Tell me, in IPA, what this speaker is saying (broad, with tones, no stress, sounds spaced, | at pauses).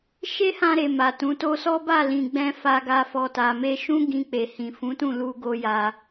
ʃ e˦ h ã˧ ɾ e˨ m a˨ t ũ˨˦ t o˦ s ɔ˦ b a˦˨ l ĩ˨ ɡ͡b ɛ̃˧ f a˧ ɡ a˧ f ɔ˨ t a˨ m e˧ ʃ ũ˦ ɡ ĩ˧ k͡p e˨ h ĩ˨ f ũ˨˦ t ũ˦˨ l u˧ ɡ o˦ j a˧